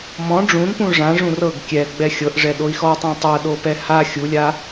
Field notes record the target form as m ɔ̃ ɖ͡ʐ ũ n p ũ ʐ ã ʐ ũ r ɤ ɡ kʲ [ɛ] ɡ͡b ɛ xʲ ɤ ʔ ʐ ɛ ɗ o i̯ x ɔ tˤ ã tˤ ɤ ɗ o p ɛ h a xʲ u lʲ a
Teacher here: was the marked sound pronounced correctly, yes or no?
yes